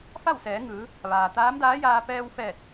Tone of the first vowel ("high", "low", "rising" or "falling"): falling